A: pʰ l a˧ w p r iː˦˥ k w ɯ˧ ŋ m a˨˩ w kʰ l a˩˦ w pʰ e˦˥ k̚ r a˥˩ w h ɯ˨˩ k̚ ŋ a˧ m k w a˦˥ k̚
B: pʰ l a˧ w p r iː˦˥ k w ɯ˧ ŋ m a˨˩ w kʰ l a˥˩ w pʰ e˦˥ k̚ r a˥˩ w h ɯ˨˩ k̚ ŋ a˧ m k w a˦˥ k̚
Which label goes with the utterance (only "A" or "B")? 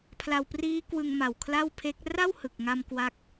B